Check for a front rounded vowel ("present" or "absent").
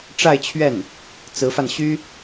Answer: present